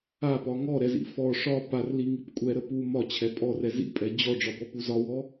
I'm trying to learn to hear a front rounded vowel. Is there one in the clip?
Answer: no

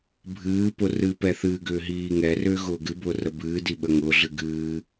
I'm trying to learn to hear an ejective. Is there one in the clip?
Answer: no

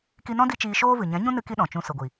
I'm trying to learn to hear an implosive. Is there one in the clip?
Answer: yes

